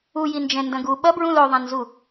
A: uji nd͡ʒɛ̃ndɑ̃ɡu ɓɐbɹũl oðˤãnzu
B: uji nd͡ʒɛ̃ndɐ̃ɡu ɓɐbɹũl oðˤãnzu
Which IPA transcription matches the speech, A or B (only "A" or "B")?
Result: B